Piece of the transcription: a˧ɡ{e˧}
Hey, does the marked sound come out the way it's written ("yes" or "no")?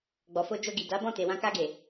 no